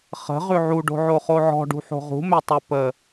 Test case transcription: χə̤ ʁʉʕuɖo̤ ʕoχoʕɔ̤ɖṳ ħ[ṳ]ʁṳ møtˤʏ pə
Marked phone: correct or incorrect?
incorrect